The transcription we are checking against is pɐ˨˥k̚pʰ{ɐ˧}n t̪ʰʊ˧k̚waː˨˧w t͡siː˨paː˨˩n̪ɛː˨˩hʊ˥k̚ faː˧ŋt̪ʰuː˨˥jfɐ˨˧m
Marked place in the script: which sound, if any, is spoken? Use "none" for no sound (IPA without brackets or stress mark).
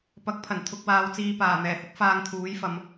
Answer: ɐ˨˩